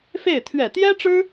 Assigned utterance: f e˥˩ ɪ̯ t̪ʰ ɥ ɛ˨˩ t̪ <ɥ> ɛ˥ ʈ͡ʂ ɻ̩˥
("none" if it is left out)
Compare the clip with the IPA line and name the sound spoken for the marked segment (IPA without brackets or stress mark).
j